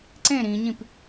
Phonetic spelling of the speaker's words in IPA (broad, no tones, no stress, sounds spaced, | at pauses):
ǀ ẽ ɾ ĩ ɲ ĩ p